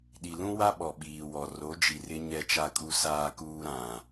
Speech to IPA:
ɗi˨lũ˦wa˦ ɓɔ˨ɓiː˨wɔ˨ ro˨˦d͡ʒi˨rɪ˦ ɲɛ˦t͡ʃa˦kʼu˦ saː˦kuː˦ ɾã˨

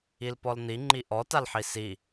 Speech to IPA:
ilpɔln̪i ŋ͡ǃiʔɔ talħisi

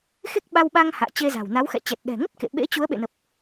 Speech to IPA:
xe˦˥k̚ɓa˧wɓa˧ŋ ha̰ː˧˨t͡ɕe˧za̤˨˩w na˨˦wxɛ̰˧˨t͡ɕɛ˨˩t̚ ɗɛ̤˨˩ŋə˦˥t̚ kḛ˧˨ ɓḛ˧˥t͡ɕu˨˦ə̯ɓḛ˧˨nə˨˩p̚

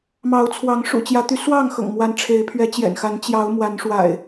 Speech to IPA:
mɑ˨˦ʊ̯t͡sʰwɑ˨˦ŋ ʂṵ˨˩t͡ɕjä˨˦t̪y˨˦ swɑ˥˨ŋxɤ̰˨˩ŋ mwa˨˦nʈ͡ʂʰe˨˦ɪ̯pʰɥɛ˨˦ t͡ɕjɛ̰˨˩nxa˨˦n t͡ɕjɑ˨˦ʊ̯ mwa˨˦nʂwa̰˨˩ɪ̯

